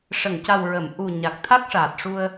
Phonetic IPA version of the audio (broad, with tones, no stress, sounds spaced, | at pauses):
ʂ ə˨˩˨ ŋ c a˨˩ w ɹ ə˨˩˨ m ʔ u˨˩ ɲ a˨˩ k̚ t̪ʰ a˦˥ k̚ ʂ aː˨˩ t̚ ʂ u˧ ə̯